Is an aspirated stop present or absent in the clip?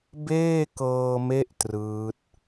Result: absent